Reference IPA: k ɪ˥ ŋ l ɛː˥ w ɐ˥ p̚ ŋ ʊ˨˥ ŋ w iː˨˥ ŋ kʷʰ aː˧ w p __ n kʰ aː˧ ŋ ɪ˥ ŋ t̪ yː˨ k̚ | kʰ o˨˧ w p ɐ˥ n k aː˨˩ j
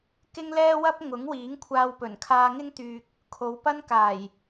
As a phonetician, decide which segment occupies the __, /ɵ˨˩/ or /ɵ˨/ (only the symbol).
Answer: ɵ˨˩